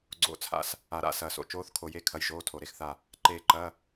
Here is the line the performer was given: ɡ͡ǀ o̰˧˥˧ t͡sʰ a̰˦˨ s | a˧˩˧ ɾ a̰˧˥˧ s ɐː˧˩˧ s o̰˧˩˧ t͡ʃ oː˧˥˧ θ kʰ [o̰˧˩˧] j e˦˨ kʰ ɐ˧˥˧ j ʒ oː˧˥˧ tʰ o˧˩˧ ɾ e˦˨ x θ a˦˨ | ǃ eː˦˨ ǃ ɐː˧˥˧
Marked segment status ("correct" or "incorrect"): incorrect